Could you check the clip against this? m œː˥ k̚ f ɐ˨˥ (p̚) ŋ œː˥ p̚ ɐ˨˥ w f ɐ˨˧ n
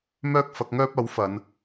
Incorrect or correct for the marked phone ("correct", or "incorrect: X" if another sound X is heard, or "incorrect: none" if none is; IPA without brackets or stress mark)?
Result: incorrect: k̚